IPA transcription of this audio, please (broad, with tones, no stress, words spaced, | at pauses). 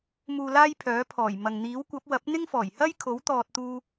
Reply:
muː˧laː˥j pʰœː˨˥pʰɔː˨˩jmɐ˨ŋ n̪iː˨˥wkʷɐ˨˥p̚ wɐ˨˥p̚n̪ɪ˥ŋ fɔː˨˩jhɐ˥j kʰo˨˥wt̪ɔː˨t̚t̪uː˧